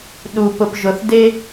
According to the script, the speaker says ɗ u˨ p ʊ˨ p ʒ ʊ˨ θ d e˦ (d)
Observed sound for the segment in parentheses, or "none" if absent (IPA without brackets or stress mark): none